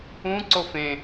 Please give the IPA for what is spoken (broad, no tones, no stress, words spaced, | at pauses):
ũǀof ẽ